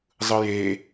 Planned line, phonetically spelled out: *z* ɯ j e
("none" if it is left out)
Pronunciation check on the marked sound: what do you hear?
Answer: zˤ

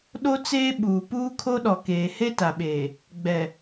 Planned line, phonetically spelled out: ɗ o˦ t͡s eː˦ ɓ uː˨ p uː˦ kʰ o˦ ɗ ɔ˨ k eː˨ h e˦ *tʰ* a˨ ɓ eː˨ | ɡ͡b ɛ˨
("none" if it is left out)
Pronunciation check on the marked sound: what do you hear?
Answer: t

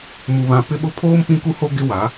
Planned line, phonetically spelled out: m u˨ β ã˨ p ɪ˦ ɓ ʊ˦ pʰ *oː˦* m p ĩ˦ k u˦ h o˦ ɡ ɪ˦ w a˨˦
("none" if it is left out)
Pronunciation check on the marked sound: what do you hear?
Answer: oː˦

